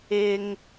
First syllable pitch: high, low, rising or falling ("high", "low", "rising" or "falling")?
low